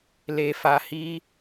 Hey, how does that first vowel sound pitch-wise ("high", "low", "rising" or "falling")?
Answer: low